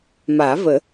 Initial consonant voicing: voiced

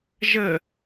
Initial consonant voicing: voiced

